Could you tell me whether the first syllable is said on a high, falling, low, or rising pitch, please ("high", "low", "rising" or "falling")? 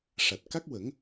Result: low